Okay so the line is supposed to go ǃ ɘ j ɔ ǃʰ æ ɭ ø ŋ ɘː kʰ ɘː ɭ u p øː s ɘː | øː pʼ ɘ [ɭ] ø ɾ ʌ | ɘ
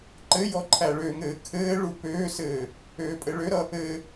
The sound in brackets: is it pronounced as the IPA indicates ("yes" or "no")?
yes